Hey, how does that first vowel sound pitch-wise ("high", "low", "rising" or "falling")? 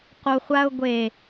low